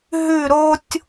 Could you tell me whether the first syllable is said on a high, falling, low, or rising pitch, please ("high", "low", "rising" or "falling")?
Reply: falling